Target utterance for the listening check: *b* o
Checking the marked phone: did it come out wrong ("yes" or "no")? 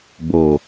no